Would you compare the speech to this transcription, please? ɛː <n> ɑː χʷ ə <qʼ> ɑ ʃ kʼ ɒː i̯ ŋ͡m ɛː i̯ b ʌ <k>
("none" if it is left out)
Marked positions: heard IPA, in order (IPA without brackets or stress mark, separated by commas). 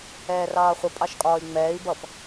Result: r, pʼ, p